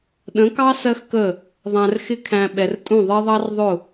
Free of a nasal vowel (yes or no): no